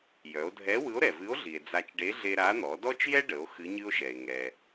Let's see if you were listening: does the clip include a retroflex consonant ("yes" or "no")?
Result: yes